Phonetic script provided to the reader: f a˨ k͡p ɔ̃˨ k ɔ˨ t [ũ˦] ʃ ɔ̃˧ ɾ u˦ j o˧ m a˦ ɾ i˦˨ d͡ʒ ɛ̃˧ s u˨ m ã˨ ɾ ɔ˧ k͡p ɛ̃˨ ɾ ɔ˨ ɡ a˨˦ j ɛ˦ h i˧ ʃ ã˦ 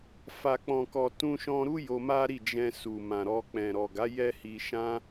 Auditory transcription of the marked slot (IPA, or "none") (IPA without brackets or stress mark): ũ˧